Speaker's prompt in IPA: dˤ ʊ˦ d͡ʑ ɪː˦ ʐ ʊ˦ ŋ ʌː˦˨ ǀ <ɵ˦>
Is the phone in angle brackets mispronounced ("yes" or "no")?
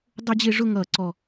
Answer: yes